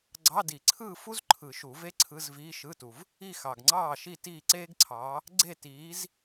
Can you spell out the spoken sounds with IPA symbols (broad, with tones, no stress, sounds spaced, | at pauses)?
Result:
ɡ͡ǀ ɑ˧˥˧ d i˨˩˦ ǀʰ ɯː˥˨ f u˥ z ǃʰ ɯ˨˩˦ ʃ u˨˩˦ v e˥ ǀʰ ɯ˧˥˧ z v iː˧˥˧ ʃ ɯ˧˥˧ t u˨ v | i˥˨ x ɑ˨ ɡ ŋ͡ǀ ɑː˥˨ ʃ i˥˨ t iː˥˨ ǀ eː˥ ɡ ǀʰ ɑː˨˥ | ɡ͡ǀ e˥˨ t iː˨˥ z